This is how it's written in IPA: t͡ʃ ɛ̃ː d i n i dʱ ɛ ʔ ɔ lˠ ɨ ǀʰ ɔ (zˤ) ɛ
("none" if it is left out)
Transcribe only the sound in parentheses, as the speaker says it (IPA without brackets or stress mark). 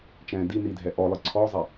zˤ